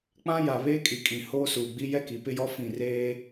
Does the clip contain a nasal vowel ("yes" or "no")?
yes